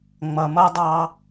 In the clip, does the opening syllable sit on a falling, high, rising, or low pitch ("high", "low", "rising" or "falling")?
low